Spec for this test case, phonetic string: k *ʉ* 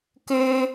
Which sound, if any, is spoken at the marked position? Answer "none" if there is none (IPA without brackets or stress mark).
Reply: ø